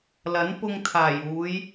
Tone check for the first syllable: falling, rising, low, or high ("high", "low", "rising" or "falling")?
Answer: rising